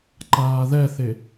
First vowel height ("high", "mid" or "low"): low